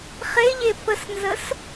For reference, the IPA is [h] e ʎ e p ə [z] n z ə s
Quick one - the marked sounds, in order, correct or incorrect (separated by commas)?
incorrect, incorrect